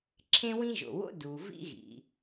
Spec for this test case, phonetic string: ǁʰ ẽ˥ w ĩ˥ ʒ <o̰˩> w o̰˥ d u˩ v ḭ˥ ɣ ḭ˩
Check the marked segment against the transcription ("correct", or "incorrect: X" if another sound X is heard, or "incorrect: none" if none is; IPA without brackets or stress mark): correct